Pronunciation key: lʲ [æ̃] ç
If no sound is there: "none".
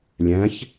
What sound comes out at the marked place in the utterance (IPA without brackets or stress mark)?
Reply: æ̃